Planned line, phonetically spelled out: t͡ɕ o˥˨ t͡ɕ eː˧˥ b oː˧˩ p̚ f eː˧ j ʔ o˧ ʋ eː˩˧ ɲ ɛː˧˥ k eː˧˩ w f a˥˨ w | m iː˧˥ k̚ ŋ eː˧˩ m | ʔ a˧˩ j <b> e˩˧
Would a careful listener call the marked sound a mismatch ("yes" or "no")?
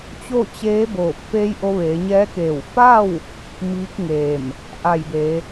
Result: no